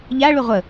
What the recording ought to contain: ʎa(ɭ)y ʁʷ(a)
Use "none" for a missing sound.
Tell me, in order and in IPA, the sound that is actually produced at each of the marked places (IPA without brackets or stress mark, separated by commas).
ɭ, ə